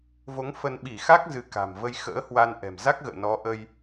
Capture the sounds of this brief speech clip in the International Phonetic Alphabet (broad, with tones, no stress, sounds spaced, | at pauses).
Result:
v o˨˦ ŋ f ə˧ n ɓ i˧˩ x a˦˥ k̚ z ɨ˨˦ k a̤˨˩ m v ə˧ j x ə̰ː˧˥ h w a˧ n ʔ ɛ̤˨˩ m z a˦˥ k̚ ɣ ə̰ː˧˨ n ɔ˨˦ ʔ ə˧ j